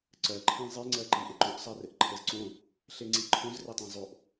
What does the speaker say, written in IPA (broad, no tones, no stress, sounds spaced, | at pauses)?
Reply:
ǀ ɜ ǃʰ ẽ zˤ e ŋ͡ǀ ɜ ǃ i ʔ ɪ ǃ õ ʔ sˤ ɜ r ɘ ʔ ǃʰ ɘ z ǀ õ | ɬ e ŋ͡ǀ i ǃʰ õ z r ɪ tˤ ẽ zˤ o ʔ